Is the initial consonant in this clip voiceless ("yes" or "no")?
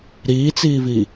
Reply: no